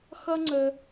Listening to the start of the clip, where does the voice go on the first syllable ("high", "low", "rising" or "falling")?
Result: high